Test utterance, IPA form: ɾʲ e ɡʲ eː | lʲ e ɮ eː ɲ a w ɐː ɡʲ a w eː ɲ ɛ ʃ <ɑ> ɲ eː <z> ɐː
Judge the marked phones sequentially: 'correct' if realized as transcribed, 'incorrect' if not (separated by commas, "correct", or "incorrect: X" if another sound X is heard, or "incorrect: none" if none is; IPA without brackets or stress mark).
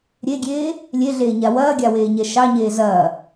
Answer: correct, correct